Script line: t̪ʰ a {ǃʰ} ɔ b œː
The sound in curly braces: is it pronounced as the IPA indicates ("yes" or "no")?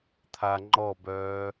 no